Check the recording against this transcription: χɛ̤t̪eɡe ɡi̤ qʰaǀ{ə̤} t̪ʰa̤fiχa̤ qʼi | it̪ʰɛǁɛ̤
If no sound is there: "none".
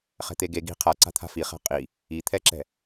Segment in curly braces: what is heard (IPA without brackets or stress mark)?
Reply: a̤